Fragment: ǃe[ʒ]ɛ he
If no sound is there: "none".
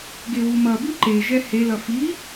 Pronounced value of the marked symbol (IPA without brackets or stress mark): ʒ